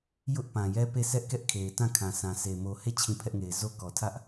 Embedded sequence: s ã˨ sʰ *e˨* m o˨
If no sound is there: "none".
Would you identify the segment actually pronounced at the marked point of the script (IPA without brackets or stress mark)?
e˨